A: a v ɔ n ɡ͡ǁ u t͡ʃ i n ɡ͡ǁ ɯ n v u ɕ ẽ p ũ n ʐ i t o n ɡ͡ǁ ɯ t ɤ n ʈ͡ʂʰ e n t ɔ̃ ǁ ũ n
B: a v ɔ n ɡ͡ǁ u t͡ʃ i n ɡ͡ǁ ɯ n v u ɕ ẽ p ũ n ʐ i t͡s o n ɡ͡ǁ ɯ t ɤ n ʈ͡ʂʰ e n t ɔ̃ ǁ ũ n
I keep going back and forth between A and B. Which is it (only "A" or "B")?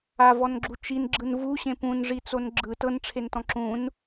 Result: B